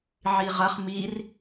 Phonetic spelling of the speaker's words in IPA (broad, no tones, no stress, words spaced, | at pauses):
ʕiʁɐχ mir